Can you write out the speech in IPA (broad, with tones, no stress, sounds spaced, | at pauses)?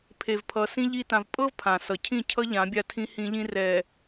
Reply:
pʰ e˨ v pʰ ʌ˨ s ĩ˦ ʎ i˦ t ã˨ v pʼ ɤ˦ v pʰ ã˨ s ʌ˨ cʰ ĩ˦˨ cʰ ʌ˦ ʎ ã˨˦ bʲ a˦˨ tʰ ĩ˦ h ĩ˦ ʎ ĩ˦ r ɛ˨